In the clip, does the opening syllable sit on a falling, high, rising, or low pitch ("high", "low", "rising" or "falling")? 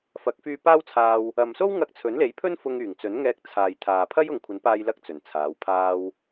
rising